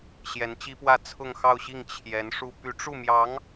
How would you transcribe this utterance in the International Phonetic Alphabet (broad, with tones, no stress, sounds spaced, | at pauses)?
ɕ j ɛ˧˥ n t͡ɕ i˥ p w ä˥˧ t͡sʰ ʊ˥˧ ŋ x ɑ˥˧ ʊ̯ ɕ i˥˩ ŋ t͡ɕʰ j ɛ˧˥ n ʂ u˥ p y˧˥ ʈ͡ʂ u˥˩ m j ɑ˧˥ ŋ